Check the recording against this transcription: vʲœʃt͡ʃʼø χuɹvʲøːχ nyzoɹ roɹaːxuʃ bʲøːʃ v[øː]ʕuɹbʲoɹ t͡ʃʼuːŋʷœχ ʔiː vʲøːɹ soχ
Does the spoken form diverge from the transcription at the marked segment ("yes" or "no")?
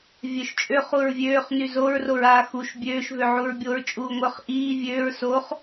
yes